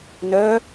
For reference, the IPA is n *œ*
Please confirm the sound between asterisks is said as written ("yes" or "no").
yes